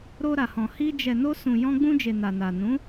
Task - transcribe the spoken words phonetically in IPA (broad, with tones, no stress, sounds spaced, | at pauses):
ɾ o˧ ɾ a˨ h ɔ̃˨ h i˧ d͡ʒ ɛ˨ n o˧ s ũ˨ j ɔ̃˧ ɡ͡b ũ˧ d͡ʒ e˨ n a˨ n a˨ n ũ˨˦